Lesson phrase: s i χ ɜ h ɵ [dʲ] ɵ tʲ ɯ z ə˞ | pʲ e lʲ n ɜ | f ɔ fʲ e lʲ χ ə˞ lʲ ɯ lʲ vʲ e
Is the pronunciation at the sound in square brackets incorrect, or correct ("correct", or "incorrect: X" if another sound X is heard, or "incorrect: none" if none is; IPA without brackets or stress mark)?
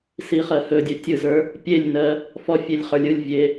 correct